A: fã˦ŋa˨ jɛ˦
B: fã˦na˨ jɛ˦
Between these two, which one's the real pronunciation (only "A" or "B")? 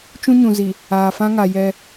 A